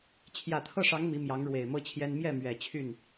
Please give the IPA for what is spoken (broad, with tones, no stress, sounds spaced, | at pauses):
t͡ɕʰ j ä˨˩ t̪ʰ ɤ˥˩ ʂ ɑ˧˥ ŋ m i˧˥ m j ɑ˧˥ ŋ ɻ w e˨˩ ɪ̯ m ɤ˥ t͡ɕʰ j ɛ˥ n m j ɛ˥˩ m ɥ ɛ˨˩ t͡ɕʰ y˥˩ n